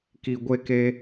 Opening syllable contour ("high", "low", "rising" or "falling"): low